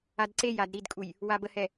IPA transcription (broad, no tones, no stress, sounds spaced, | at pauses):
a d ǀ e j a d ɾ i d kʼ u j | w a b ə h ɛ